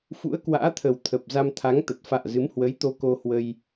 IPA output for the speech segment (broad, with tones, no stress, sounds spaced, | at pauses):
f ṵ˧˥ ə̯ k w a̰ː˧˥ t̪ʰ ə˨˩ w t̪ʰ ə˨˩ p̚ z a˧ m t̪ʰ a˨˦ ŋ t̪ ə˨˩ t̚ f a̰ː˧˨ z ɨ˨˦ m h w ə˨˦ j t̪ o˧ k o˧ h w ə˧ j